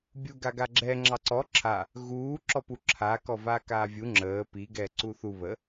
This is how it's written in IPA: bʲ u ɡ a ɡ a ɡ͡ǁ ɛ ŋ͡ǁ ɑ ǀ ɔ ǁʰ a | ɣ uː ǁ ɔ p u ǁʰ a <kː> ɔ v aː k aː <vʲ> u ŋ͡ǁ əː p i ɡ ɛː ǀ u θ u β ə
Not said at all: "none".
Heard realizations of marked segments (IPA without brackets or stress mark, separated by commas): k, vʲ